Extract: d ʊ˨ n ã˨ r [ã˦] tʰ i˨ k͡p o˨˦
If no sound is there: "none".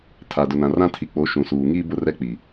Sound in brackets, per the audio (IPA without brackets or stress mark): ã˦